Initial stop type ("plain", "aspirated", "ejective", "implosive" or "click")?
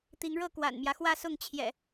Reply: plain